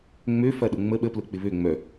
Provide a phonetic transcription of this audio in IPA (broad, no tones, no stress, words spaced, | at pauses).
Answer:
ŋ͡møfɐɗʊ ŋ͡mə ɓəplʊk͡pɪ βø ŋ͡mœ